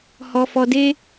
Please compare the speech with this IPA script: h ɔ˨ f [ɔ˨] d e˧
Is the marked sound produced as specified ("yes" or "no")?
yes